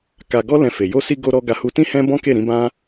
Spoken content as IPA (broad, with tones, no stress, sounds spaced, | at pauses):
k a˧ ɡ ɔ˦ l ɛ̃˧ f e˨ j o˧ s i˧ ɡ o˧ ɾ ɔ˧ ɡ a˧ h u˧ t ĩ˦ h ɛ̃˦ b ɔ̃˦ k e˦˨ ɾ ĩ˨˦ b ã˦